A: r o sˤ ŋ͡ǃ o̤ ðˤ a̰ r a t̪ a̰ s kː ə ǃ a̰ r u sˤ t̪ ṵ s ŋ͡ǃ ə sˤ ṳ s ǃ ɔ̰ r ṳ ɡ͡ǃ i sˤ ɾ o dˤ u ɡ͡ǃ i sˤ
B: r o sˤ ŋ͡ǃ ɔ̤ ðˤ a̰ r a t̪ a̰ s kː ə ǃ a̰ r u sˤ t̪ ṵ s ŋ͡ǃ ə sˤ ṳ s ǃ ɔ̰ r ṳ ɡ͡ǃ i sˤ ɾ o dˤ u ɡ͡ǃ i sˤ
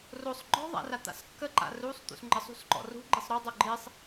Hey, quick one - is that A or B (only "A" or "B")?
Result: B